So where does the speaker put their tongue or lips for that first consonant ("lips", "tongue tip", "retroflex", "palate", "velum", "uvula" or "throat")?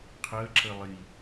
uvula